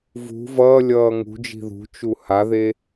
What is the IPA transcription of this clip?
vṳ vʌːlʲʌː ŋṳd͡ʒi̤ ðṳt͡ʃu haðe

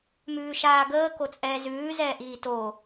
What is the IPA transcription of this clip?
mʉːʃaːɡəː kot͡sʼɛːzʉː zɛːʔiːtoː

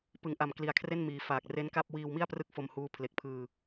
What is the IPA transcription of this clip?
pɯ˩˦ŋʔa˨˩m kli˨˩a̯kʰre˥˩nmiː˩˦faː˨˩k̚ re˦˥nka˥˩p̚ wiː˧wmi˥˩a̯ prɯ˥˩k̚fo˧mhuː˦˥ pʰle˨˩k̚ pʰɯː˧

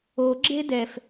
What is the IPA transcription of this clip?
oɡ͡ǁe dɛf

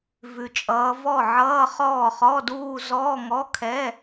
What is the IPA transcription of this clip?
vʉ˨t͡ʃʼʌː˨˦vɔ˥˩ ʕʌː˧˥˧χɔː˥˩ χɔ˧˥˧duː˥˧ zɔː˧˥˧ŋɔ˧˥˧kʰɛ˧˥˧

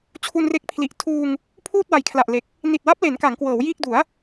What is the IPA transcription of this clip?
t͡ɕʰu˧nre˦˥k̚pʰli˨˩ʔ tʰuː˧ŋ | pʰuː˥˩t̚ wa˩˦jkʰla˨˩ʔle˨˩k̚ | ni˨˩t̚wa˦˥p̚le˩˦n ka˩˦ŋkwɤː˩˦wjiː˥˩k̚ du˩˦a̯

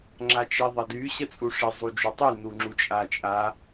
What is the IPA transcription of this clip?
ŋ͡ǁat͡ʃeðˤɐdy ɕət͡sʼuʂɪ zˤud͡ʒutˤy nuŋ͡ǁut͡ʃʼat͡ʃʼa

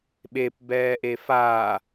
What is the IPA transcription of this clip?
ɓep bɛːʔefaː

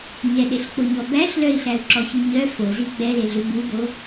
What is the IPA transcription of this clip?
ɲɛɗeɬk͡poɲɔ bæɬ lœi̯ɬæu̯ǁɔçy ɲœ fozi ɡ͡bɛleɮʉ bubo

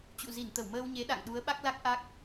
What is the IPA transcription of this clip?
t͡ɕṵ˧˨zi˧˩n t̪ə˧˩wməː˧wɲe˨˦ ɗa̰˧˨ŋɗu˨˦ə̯ ɓa˦˥k̚la˦˥k̚ ʔa˦˥k̚

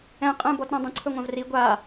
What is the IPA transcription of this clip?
ɛ̃ qʼə̃ bɔtɾãdˤə̃ ǀʰɵŋʷãvri ɡʷa

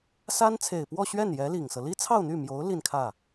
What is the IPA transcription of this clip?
sa˥n t͡sʰe˨˩ɪ̯pwɔ˥˧ɕɥɛ˥˩njɛ˧˥ li˨˩ŋsɤ˦ li˥t͡sʰɑ˥˧ʊ̯n̪y˥˩mjo˧˥ʊ̯ li˥˧nkʰä˥˩

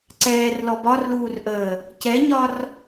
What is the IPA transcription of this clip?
ǀɛːrlɔ bɒrluːrʔəː | cɛɲɒr

